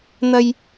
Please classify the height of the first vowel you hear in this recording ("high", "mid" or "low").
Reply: low